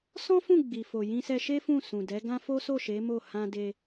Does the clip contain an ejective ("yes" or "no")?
no